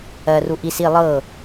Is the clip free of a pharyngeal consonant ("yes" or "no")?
yes